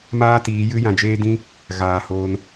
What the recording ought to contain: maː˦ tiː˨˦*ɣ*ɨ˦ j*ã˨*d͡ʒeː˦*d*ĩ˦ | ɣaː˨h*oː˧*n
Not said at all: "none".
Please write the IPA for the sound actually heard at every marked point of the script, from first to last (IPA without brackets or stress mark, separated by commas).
j, ã˨, d, oː˧